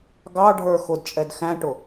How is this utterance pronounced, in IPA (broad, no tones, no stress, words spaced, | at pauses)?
ɡɑ ɖʱə˞xʊdt͡ʃʼɛd xæ̃ʈʊ